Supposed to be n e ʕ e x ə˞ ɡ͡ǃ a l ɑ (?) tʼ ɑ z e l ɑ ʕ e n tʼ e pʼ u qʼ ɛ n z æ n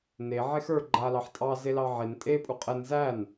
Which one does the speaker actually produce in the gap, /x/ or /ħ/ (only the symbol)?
ħ